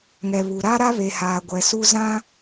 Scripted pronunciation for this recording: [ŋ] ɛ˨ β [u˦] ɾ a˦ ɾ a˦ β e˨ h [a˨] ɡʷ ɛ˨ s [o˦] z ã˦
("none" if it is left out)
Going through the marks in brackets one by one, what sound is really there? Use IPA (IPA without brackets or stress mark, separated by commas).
ŋ, u˨, aː˨, u˦